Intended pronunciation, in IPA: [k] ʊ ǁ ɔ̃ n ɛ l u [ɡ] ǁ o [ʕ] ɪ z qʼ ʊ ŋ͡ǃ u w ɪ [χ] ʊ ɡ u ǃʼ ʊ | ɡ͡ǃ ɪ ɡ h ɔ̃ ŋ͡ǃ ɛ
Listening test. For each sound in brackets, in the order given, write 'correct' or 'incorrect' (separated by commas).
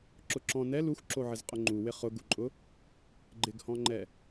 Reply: incorrect, incorrect, correct, correct